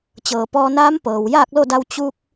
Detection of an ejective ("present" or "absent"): absent